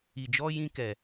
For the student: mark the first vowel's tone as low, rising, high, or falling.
low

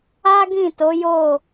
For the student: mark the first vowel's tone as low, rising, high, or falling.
high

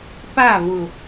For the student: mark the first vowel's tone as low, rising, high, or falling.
falling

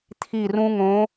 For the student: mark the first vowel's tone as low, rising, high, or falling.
falling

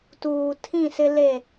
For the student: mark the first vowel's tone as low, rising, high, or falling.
low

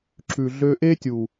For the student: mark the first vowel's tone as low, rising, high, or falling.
low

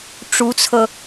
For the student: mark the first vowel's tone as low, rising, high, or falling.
rising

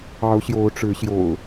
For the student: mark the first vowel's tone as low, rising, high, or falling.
rising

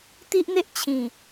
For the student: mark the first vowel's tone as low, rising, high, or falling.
high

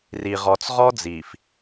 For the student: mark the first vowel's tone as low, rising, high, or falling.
low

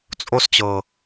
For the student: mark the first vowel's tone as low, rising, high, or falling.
high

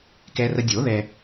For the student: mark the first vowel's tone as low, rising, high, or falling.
low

